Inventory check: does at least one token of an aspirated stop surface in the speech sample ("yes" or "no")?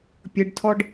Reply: yes